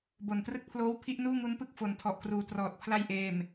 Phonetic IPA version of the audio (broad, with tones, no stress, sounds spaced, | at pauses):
b o˨˩ n t r ɯ˥˩ k̚ pʰ l oː˥˩ w pʰ i˥˩ ʔ n uː˥˩ ŋ u˦˥ n p ɯ˥˩ k̚ f o˨˩ n tʰ ɔ˨˩ ʔ k r uː˨˩ t r ɔː˨˩ t̚ pʰ l a˧ j ʔ eː˨˩ m